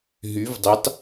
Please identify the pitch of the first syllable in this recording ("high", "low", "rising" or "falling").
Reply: rising